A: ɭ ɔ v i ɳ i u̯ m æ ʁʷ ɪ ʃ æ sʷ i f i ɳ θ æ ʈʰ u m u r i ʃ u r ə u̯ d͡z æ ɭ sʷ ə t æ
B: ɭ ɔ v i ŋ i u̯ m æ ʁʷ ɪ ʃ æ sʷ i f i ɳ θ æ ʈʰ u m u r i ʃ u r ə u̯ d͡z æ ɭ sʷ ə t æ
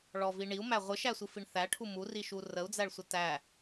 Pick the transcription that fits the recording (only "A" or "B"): A